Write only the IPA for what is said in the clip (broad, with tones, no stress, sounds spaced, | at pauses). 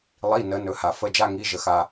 lˠ i˩˧˩ n ə˩˧ n ɵ˩˧˩ h a˩ f ə˩˧˩ d͡ʒ a˧˩ ŋ i˩˧˩ ʒ ə˩ x a˩